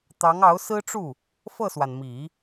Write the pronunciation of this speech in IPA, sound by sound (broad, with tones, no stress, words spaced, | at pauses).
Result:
t̪ɑ˧˥ŋɑ˧˥ʊ̯sɹ̩˥ʈ͡ʂu˥˩ | fɤ˥˩swa˩nmi˨˩˦